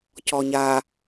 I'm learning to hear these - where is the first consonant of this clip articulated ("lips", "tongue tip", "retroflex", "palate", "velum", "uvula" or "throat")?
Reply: palate